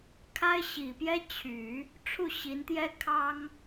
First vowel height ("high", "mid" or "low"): low